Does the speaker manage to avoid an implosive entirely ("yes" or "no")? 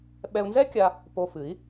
no